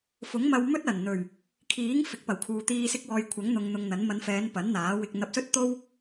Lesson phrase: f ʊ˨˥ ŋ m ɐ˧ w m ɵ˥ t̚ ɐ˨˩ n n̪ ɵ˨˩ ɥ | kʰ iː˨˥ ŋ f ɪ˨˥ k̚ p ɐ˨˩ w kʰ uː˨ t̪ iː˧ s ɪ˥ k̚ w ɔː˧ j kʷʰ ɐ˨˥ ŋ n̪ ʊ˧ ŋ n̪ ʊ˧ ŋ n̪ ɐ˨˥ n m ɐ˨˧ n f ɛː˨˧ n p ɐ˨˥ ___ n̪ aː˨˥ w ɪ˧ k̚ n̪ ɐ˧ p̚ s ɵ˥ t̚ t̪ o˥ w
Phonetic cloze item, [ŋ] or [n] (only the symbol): n